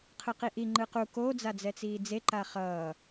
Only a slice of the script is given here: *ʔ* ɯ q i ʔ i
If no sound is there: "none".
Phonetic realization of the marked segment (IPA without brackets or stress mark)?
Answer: qʰ